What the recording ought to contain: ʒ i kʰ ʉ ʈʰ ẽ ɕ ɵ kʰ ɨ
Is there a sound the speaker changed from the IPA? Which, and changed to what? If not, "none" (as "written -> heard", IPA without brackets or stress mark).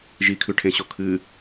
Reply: ɵ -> o